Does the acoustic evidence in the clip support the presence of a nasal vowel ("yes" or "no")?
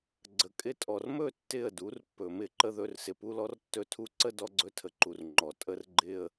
no